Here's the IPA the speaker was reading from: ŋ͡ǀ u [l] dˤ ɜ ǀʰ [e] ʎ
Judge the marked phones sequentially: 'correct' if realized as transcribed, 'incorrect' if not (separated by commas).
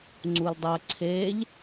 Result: correct, correct